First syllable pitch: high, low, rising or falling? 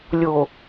low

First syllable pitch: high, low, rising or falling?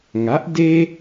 rising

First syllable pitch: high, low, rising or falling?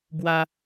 high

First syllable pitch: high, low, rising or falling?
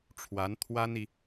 rising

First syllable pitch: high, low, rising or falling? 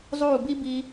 falling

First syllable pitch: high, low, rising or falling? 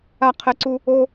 high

